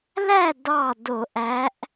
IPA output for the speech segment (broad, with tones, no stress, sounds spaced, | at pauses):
l æ˥˨ d ɑ˥˨ d o˧˩˧ ʔ æ˧˥ ʔ